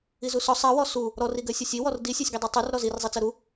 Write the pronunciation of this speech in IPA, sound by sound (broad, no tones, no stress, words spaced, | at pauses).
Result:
izusɔ sˤɜwɔ su | ɾɔriɡɜsʲɔsʲ iwɔr disʲɜsʲɡidˤu tˤur ɾɔzirzˤit͡sɜ ɾu